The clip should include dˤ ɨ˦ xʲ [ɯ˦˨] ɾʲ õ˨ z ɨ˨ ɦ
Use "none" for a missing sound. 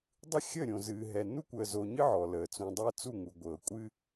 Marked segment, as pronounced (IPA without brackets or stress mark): ə˦˨